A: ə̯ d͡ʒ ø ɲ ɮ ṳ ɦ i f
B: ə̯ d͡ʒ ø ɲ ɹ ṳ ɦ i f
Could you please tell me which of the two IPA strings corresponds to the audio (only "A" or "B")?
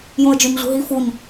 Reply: A